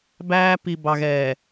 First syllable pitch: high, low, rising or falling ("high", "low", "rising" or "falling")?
high